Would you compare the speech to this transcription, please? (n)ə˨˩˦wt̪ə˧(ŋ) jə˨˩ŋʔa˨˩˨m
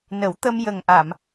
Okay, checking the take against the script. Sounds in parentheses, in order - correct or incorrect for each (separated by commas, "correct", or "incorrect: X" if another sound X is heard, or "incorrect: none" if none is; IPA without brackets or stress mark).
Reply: correct, incorrect: m